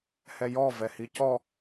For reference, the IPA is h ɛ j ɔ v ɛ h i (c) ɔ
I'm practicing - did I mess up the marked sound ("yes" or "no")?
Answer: no